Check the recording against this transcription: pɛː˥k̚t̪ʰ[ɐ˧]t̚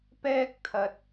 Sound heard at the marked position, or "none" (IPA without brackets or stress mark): ɐ˧